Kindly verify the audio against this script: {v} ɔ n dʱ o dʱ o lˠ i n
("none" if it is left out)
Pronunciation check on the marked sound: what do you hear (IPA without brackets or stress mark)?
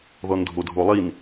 ð